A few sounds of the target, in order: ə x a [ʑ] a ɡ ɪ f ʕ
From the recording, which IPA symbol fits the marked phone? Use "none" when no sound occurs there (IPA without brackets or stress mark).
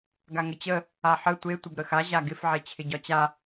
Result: ʑ